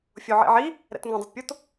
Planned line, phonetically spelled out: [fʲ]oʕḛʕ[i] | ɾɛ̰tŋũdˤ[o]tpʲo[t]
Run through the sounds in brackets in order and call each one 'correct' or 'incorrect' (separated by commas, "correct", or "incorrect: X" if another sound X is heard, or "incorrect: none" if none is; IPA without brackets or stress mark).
correct, correct, correct, correct